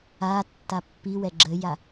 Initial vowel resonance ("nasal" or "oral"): oral